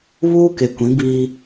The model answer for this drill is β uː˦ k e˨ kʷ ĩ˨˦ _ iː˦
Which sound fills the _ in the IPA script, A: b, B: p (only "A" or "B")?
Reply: A